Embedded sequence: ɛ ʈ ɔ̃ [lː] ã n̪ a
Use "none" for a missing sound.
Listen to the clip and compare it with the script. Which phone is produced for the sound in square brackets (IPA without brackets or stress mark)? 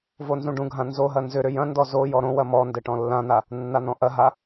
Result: lː